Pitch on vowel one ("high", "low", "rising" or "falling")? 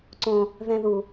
high